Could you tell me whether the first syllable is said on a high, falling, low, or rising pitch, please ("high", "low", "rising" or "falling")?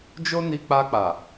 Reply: high